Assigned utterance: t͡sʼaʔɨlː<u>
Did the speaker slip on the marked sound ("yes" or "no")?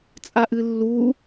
no